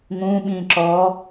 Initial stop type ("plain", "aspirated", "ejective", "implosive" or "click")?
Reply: implosive